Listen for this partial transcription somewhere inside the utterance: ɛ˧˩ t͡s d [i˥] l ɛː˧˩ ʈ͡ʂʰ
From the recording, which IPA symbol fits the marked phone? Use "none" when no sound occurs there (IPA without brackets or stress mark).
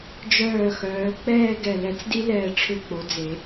i˥